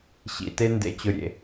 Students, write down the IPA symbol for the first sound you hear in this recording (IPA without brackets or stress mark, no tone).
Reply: ɕ